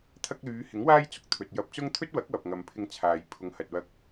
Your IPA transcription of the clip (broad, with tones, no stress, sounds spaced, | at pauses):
t̪ʰ ɐ˧ k̚ l yː˨˧ h ɪ˨˥ ŋ w aː˥ j t͡s ʊ˨˥ k̚ t̪ʰ ɵ˨ t̚ j ɐ˧ p̚ t͡s ʊ˥ ŋ t̪ʰ ɵ˥ t̚ w ɐ˨˥ k̚ w ɐ˨ p̚ ŋ ɐ˨ m pʰ ɪ˧ ŋ t͡sʰ aː˨ j pʰ ʊ˨˧ ŋ h ɐ˨ t̚ w ɐ˧ k̚